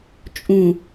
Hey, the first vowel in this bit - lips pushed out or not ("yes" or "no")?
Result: yes